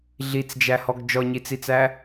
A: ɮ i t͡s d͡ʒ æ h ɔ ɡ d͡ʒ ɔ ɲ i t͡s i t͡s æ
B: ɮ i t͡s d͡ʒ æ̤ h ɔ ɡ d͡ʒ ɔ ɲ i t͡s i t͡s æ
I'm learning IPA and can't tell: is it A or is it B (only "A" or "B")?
A